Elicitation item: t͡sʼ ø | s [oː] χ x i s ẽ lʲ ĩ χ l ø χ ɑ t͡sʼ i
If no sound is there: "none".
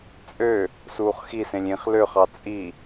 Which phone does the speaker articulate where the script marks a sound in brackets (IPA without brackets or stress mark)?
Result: uː